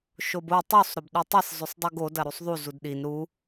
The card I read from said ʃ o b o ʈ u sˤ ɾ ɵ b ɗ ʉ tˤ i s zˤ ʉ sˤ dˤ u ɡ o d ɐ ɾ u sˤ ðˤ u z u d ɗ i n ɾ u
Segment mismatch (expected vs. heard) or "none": ʈ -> tˤ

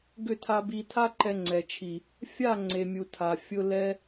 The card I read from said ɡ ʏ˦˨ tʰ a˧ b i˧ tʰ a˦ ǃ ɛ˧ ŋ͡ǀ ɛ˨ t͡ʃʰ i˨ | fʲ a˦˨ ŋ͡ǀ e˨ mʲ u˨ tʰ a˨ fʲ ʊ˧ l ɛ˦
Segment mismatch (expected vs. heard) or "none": none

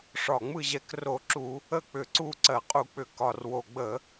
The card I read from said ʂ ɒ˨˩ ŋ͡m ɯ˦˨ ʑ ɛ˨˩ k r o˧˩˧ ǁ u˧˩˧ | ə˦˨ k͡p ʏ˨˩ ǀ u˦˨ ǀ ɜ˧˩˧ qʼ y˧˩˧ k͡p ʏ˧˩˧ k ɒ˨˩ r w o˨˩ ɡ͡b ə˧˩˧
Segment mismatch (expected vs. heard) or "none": y˧˩˧ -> u˧˩˧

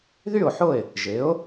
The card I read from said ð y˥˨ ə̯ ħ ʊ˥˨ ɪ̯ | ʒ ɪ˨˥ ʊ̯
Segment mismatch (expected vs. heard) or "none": ə̯ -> ʊ̯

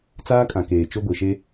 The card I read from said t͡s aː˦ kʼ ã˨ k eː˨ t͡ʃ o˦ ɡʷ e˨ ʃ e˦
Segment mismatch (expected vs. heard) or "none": none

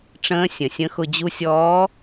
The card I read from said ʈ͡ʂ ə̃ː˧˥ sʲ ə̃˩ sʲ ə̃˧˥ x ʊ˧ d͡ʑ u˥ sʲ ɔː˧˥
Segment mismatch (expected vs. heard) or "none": none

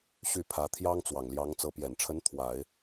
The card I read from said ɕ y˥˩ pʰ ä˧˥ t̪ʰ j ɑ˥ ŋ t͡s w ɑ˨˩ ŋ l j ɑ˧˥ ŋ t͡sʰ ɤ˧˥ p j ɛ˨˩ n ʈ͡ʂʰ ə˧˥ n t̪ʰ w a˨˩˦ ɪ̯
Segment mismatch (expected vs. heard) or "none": t͡sʰ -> t͡s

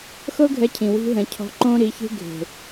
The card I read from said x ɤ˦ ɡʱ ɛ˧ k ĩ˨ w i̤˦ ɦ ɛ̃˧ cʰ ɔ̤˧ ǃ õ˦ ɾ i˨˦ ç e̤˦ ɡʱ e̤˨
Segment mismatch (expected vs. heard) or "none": k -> cʰ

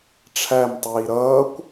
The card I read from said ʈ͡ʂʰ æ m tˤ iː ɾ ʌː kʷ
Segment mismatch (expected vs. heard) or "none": none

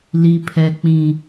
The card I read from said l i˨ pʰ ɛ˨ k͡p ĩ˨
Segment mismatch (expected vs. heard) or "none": none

